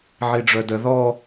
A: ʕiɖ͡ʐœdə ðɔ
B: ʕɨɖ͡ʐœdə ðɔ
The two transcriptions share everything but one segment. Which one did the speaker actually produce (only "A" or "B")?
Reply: A